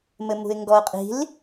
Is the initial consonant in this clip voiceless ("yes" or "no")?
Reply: no